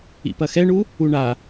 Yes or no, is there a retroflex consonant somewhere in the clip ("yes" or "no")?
yes